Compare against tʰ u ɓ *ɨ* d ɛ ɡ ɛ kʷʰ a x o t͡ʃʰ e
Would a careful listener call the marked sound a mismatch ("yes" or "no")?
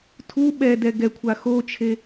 yes